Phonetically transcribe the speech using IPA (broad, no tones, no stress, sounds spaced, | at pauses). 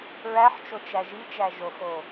ɹ æ ħ t͡ʃ o t͡ʃ æ ʒ i t͡ʃ æ ʒ o x o